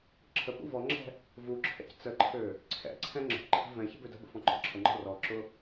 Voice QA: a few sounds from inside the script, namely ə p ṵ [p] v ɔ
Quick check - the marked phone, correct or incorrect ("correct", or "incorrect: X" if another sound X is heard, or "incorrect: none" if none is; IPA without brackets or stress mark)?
incorrect: none